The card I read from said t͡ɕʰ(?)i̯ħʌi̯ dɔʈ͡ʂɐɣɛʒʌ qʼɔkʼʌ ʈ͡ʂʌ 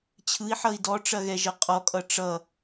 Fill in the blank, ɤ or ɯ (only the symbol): ɯ